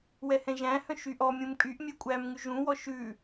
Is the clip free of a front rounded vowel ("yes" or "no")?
no